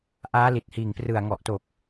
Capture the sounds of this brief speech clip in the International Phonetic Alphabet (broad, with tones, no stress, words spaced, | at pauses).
ʔaː˦˥li˨˩t̚ hiː˨˩ŋprɯ˨˩a̯ŋɔ˨˩ʔto˨˩k̚